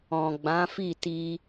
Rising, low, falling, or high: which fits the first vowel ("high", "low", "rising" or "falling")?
low